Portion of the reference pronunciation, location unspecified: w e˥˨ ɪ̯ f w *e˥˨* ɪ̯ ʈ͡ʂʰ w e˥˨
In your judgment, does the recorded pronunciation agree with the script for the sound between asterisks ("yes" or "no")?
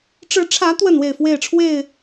yes